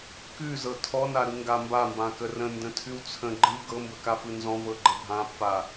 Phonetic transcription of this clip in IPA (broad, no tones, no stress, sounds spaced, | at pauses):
k ʉ z ɤ tʰ ɔ n a ɾ ɯ ŋ ɡ a m b a m b ã k ə r ə̃ n d ə̃ tʰ ʉ w t͡sʰ ə̃ ɡ͡ǃ ɯ ɡ ɤ m b ə k a f ɯ n z ɔ̃ v ɤ ɡ͡ǃ ə bʱ ã pː a